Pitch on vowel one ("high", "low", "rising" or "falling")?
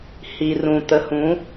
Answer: low